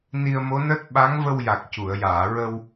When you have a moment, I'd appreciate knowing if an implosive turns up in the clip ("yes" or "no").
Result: yes